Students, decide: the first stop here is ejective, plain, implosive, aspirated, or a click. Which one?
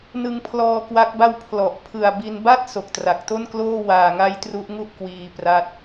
aspirated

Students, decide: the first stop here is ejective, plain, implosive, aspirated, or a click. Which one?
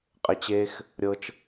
ejective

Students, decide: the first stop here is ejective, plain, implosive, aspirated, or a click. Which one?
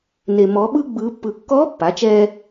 implosive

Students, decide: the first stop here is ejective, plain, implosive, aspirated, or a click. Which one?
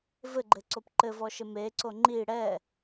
click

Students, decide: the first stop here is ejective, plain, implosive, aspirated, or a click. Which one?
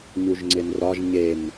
click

